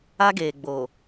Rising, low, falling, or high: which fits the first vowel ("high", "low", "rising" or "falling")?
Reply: high